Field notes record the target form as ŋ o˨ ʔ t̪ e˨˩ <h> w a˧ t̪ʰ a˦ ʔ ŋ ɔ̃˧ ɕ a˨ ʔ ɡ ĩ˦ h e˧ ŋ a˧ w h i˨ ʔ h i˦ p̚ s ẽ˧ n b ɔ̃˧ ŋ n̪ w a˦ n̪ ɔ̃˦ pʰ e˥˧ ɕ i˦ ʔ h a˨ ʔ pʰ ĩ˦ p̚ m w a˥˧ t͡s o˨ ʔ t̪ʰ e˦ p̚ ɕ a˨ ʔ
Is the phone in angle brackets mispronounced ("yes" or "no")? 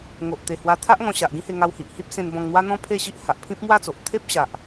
no